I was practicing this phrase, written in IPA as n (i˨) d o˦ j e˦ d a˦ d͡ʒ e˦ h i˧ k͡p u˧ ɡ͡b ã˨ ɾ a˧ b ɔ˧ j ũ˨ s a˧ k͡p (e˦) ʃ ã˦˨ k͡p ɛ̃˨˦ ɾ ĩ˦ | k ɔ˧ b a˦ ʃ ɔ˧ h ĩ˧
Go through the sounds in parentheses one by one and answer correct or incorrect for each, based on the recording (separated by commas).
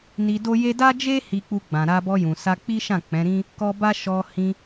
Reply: incorrect, incorrect